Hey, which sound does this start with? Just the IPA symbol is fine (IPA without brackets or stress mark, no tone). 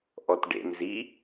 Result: ʔ